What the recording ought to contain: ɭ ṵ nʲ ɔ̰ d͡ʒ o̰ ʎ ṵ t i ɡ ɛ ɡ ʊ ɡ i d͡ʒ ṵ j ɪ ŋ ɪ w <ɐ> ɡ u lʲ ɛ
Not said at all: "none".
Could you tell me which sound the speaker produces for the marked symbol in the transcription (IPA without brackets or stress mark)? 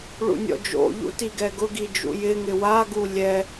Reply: a